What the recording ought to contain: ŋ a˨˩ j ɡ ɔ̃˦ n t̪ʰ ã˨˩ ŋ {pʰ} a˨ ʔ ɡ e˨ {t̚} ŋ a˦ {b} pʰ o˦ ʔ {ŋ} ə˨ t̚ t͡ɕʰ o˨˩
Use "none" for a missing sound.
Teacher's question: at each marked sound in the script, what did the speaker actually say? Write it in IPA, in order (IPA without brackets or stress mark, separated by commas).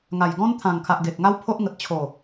kʰ, k̚, w, ŋ